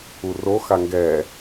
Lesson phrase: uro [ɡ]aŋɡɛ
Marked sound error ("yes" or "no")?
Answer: yes